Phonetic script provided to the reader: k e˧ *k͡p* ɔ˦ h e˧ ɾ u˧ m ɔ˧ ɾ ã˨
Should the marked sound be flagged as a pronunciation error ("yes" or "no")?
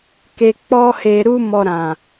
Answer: no